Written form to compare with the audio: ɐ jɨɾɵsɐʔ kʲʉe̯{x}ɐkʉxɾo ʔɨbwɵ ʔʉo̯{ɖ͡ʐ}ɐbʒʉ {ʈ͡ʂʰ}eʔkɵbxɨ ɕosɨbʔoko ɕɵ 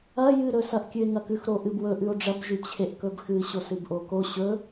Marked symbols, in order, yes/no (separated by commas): no, yes, no